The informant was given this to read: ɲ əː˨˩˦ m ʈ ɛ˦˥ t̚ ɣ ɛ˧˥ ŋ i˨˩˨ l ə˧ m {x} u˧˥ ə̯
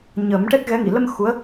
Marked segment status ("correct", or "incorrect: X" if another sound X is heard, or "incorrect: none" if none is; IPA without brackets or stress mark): correct